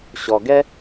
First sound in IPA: ɕ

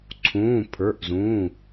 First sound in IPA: ǀʰ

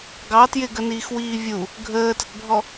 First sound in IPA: ɡ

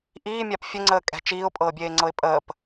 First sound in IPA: ʔ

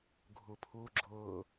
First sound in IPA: ɡʱ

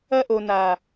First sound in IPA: ɐ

